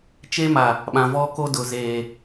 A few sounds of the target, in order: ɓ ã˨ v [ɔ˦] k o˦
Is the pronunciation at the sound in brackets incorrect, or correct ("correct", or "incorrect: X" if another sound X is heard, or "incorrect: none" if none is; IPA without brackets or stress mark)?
correct